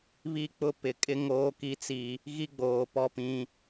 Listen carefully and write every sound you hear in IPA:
β i˦ k͡p ʊ˦ p ɪ˨ kʼ ɪ˦ ŋ oː˦ k i˦ t͡s i˦ | ɣ i˦ ɡ͡b oː˨ p ɔ˦ p ĩ˦

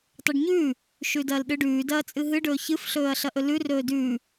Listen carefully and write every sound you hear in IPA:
tˤ ʉ ɖ ɲ ʉː | ʃ ʉ d ɐː l ɗ ɨ ɖ ʉː d ɐː t͡sʼ ɨ ɦ ɨ ɖ ɵː ç ɨ f ɬ ɵː ɐ̯ ɬ ɐ ʔ ɵ l ʉ r ɵː d ʉː

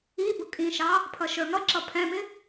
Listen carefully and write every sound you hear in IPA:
i b ʊ kʼ ĩ ʃ ɑ | pʰ ʌ ʃ ə˞ ŋ ʌ ǁ ʌ pʰ ɛ̃ m ɪ

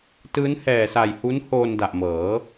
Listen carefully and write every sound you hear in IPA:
t ɯː˦˥ n h ɛː˨˩ s a˨˩ j h u˦˥ n h oː˧ n d a˨˩ ʔ m ɤː˩˦

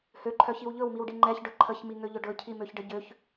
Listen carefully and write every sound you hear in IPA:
h ø ǃʰ œ ç i w ʎ ɵ w m i w ɖ i ŋ͡ǃ ɛ ç ɖ ɵ ǃʰ ə ç m i ŋ ø ʎ ʊ ɖ ɵ cʰ i m ø ç ɖ ə ɟ ø ç

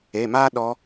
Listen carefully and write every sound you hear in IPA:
e˩˧˩ m a˥ ɗ ɔ˧˥

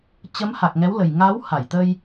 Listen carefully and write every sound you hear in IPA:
t͡ɕ ə˨˦ m h a˨˩ k̚ ŋ ɛ˨˦ w l ə˨˩ j ŋ a˨˦ w h a˧˩ j t̪ ə˧ j

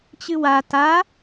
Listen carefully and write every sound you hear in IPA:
t͡ɕ ɨ w a t a

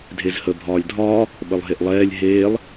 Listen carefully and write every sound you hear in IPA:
dʱ e z h ə bʱ ɒː lʲ dʱ ɒː | ɓ ə lˠ ɦ e ʔ lˠ ɛː lʲ ɦ eː lˠ

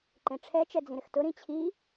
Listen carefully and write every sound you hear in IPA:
ǃ ẽ ʈ͡ʂʰ ɛ t͡ʃ ɛ d͡z ĩ ɾ ɪ x t ʊ ɾ ĩ t͡ɕʰ i

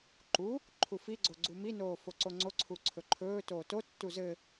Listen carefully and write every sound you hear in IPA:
ǃ u | ǃʰ u f i ɡ͡ǀ o ɡ͡ǀ u m i n oː f o ǀ o ŋ͡ǀ o ǀʰ u ǀʰ ɵ ǃʰ ɵː t oː t o tː u z ɘ

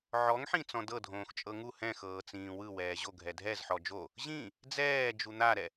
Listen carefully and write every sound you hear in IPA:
ʕ ɔ ŋ ħ ĩ t͡s ɔ̃ d ɤ dʱ õː x t͡ʃʼ ɤ ŋ u h ɛ̃ x ɤː t͡s ĩː w ɯ w ɛː ʑ o ɡʱ ɛ dʱ ɛ z ħ ɔ d͡ʒ o | ʑ ĩ | d͡z ɛː d͡ʒ u n̪ a ɾ ɛ

